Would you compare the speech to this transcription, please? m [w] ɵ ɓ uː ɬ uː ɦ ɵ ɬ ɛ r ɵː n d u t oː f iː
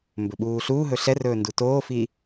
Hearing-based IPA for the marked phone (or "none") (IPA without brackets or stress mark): b